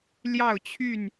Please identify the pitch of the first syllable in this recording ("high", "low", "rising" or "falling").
falling